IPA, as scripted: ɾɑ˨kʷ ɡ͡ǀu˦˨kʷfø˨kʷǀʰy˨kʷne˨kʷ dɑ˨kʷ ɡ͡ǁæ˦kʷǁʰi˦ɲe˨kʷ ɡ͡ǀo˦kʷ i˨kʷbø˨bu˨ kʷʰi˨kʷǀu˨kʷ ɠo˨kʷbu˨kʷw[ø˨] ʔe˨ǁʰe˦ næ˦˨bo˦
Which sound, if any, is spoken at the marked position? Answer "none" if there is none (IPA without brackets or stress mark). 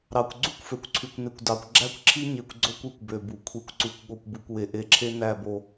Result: e˨